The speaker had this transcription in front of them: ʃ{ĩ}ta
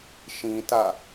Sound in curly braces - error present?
no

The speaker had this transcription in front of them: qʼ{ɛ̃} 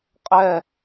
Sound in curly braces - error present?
yes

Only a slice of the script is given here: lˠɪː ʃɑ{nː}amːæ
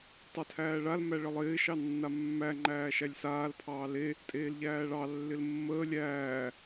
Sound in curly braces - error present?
no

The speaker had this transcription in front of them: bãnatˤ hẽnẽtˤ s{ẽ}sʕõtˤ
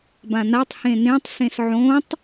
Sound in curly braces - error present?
no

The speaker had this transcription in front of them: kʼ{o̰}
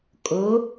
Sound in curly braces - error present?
yes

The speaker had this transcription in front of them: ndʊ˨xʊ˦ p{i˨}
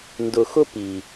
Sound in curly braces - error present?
no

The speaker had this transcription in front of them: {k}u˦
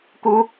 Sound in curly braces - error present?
no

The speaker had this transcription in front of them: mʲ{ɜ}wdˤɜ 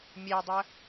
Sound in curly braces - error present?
yes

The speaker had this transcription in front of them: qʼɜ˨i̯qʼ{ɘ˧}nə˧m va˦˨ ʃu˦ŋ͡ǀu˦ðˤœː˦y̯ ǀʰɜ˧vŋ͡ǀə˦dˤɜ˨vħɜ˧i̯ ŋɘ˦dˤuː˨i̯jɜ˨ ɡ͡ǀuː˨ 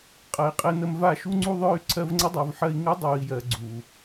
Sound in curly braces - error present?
no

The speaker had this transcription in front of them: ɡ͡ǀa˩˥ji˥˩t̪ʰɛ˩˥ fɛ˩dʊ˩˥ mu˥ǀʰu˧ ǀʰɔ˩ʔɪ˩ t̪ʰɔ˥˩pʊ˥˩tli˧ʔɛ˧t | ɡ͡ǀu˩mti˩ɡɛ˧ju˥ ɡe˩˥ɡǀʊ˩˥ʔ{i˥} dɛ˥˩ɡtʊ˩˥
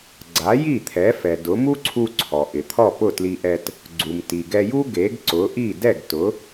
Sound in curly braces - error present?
yes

